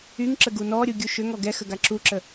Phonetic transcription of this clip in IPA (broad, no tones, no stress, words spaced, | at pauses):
yŋǁə ɡunɔɾʲu ɡʲuʃʏŋɔ ɡɛ xəɡaǁuǁə